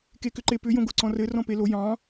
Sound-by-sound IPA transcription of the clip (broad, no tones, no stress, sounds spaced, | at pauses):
k e k ʏ ǃ e p ʏ j õ ɡ o ǀ ɔ̃ r ɘ r ɔ̃ p e l o j ɑ̃